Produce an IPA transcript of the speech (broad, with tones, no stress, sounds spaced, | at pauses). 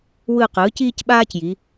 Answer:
w ɯː˦˨ q ɯː˩˥ c iː˦ c ɓ aː˦ c j i˩˧